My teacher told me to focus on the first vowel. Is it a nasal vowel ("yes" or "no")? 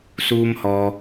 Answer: no